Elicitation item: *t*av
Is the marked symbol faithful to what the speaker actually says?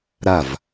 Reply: no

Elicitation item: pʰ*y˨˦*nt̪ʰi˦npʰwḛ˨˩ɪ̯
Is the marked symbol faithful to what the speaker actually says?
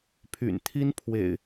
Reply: no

